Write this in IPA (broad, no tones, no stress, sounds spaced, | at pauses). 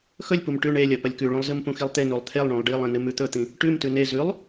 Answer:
x ɵ lʲ p u m ʈ ʉ ɳ e lʲ ɐ p ɐ lʲ k ʉ ɭ ũ lˠ z ɨ m p ũ x i lˠ t̪ e n u lˠ t̪ʰ e lˠ ɳ ũ lˠ ɖ i lˠ ẽ n ɨ m ʉ t̪ ɵ t̪ ĩ | ʈ ʉ m t ʉ n e z ʉ lˠ